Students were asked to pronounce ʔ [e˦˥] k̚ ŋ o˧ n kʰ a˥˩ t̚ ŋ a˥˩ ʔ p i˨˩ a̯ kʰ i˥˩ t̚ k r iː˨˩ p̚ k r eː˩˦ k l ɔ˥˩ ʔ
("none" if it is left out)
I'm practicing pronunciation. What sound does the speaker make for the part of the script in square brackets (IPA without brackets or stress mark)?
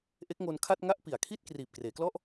e˦˥